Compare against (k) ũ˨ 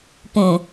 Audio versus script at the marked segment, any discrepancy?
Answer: yes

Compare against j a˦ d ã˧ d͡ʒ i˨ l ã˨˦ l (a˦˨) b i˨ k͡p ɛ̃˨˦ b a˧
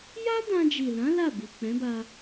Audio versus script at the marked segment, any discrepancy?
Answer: no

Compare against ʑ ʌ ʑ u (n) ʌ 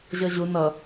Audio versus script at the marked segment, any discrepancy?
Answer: no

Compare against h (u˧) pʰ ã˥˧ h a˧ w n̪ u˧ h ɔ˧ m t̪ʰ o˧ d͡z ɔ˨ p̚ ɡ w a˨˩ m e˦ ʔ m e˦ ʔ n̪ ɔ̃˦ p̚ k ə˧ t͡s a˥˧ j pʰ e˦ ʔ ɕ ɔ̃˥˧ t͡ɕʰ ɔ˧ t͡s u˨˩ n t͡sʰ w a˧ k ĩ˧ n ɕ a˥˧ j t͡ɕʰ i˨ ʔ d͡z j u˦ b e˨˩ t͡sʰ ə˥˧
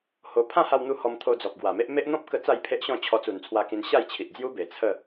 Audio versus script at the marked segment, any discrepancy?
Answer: yes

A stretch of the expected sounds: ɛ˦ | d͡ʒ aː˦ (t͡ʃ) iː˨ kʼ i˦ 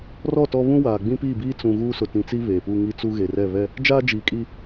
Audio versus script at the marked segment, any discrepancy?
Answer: yes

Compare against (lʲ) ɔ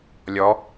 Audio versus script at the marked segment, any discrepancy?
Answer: no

